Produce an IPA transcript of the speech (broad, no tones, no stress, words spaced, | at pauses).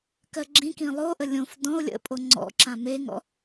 kɜɡ͡ǁĩkĩ lˠoʔə lʲõf dɔ̃o̯ lʲə̰pʼo ŋ͡ǀɔ̰ǁã meŋɔ̰